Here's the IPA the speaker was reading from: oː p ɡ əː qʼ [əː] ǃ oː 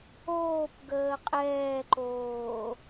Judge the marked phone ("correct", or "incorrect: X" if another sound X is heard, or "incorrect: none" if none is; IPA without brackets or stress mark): incorrect: ɛː